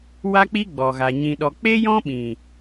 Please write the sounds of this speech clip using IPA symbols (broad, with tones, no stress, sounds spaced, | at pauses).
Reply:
w a˦ k͡p i˦ ɡ͡b ɔ˨ ɣ a˨ ɲ ĩ˨ ɗ ɔ˨ k͡p e˦ j ɔ̃˦ ɓ ĩ˨